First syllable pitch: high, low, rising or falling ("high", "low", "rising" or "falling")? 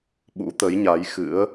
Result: rising